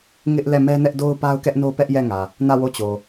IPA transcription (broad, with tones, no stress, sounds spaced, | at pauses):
ŋ ɪ˦ ʔ l ɛ˦˨ m ɛ˦ n ɛ˦ ʔ d o˦ ʊ̯ p a˦ ʊ̯ k ɛ˦ ʔ n o˦ p ɛ˦ ʔ j ɛ˦˨ ŋ ä˨ | n ä˦˨ w o˦˨ t͡ɕ o˨